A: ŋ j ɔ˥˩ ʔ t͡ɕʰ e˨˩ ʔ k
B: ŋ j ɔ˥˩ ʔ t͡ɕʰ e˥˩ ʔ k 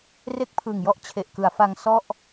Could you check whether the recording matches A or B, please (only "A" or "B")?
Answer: A